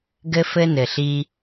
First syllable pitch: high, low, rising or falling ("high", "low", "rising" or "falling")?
high